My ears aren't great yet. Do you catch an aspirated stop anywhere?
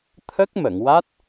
yes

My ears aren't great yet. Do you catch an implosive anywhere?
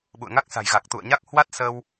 yes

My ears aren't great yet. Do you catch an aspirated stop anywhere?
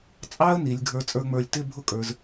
no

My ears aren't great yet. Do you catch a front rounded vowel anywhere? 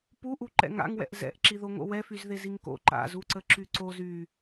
yes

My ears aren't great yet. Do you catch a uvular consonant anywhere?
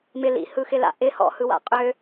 yes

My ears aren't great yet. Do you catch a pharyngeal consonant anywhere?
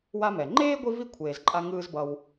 no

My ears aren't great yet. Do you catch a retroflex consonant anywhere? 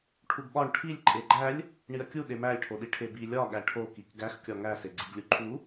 yes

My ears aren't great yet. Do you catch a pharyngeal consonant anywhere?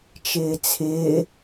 no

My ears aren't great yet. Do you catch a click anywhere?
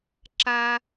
yes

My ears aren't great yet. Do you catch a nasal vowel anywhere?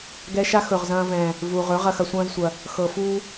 yes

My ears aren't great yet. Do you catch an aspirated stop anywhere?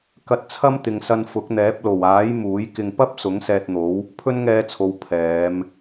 yes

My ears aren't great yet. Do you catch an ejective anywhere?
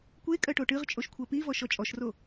yes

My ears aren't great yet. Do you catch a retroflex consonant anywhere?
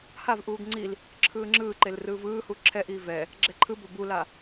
no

